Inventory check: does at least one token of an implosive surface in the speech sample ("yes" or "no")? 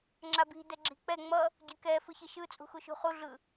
no